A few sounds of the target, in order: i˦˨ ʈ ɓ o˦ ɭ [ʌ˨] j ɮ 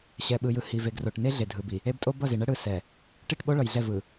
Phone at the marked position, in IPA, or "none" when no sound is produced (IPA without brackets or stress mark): ʌ˨